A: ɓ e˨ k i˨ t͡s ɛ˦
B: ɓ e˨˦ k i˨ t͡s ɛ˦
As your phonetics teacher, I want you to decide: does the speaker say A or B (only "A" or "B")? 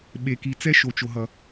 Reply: A